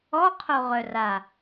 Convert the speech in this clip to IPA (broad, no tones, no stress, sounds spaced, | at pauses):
ɔ qʰ o ʁ œ r a